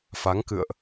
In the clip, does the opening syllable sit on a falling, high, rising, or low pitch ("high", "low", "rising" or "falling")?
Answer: rising